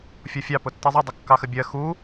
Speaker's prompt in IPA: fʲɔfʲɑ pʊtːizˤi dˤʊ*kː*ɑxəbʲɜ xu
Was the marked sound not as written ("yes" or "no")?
no